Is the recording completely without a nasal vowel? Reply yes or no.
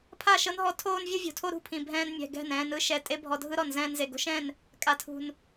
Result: no